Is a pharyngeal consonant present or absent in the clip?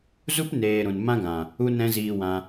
absent